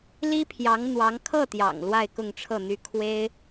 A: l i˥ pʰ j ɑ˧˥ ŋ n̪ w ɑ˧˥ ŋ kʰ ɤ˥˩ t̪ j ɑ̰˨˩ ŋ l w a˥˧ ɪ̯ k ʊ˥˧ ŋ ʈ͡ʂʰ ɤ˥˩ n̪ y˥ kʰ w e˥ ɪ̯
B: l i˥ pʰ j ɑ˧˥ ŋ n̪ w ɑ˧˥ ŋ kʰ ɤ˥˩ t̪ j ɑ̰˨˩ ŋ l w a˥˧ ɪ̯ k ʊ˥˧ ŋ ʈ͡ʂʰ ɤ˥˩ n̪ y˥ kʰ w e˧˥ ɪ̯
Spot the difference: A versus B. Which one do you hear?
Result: A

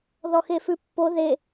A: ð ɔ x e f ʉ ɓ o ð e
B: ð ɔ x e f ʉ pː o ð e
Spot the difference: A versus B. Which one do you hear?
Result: B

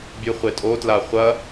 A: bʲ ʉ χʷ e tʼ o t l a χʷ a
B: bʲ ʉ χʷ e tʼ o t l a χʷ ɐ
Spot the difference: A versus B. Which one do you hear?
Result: B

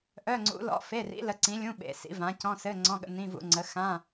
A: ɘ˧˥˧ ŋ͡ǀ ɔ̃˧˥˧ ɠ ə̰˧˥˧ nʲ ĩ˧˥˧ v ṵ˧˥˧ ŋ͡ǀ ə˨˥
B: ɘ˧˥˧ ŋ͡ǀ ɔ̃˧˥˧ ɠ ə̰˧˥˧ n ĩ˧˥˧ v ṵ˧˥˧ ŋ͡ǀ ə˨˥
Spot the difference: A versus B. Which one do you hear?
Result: B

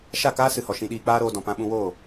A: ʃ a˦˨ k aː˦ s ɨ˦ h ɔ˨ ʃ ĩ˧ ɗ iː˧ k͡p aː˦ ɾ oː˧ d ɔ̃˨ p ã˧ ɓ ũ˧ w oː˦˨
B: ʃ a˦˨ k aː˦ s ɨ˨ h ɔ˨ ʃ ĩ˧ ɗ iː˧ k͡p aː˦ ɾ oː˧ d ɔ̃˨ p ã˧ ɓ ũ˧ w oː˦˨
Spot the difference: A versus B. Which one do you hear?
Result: B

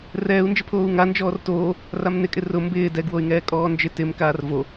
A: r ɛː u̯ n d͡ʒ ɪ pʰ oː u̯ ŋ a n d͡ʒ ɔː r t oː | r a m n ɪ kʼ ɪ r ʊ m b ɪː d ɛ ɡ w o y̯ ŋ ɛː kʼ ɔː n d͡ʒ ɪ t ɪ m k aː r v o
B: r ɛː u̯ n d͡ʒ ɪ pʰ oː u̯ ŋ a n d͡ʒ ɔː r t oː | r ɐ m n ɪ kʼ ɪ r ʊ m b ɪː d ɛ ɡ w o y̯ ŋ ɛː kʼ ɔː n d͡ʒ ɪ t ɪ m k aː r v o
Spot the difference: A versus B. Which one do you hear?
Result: A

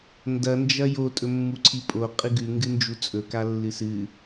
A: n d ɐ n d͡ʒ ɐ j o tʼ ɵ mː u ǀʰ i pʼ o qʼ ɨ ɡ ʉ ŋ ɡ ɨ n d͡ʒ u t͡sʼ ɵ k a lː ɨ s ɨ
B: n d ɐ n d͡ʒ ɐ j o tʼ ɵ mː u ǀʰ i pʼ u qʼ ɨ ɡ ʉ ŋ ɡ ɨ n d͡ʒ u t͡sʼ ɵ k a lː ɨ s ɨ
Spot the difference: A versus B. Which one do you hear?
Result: A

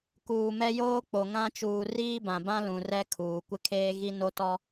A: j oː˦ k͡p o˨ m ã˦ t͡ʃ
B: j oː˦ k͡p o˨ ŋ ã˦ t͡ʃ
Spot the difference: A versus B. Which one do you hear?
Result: B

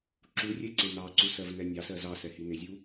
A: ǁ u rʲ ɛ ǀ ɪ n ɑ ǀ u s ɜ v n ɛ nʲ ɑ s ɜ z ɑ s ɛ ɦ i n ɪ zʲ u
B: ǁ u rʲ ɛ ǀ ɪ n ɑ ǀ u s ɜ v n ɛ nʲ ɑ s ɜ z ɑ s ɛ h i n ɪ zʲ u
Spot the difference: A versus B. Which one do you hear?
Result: B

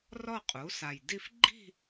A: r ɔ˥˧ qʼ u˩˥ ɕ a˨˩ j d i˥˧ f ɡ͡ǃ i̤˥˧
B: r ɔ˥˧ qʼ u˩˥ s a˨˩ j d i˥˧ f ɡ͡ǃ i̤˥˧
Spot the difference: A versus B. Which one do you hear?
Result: B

